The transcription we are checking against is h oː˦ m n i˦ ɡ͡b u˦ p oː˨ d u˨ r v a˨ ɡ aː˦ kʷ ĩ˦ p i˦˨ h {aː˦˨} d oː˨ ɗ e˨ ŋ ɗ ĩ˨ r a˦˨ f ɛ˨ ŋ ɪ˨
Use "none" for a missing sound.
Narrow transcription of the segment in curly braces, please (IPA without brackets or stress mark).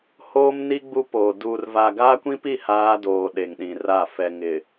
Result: aː˦